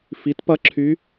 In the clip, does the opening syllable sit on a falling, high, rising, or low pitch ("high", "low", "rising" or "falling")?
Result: rising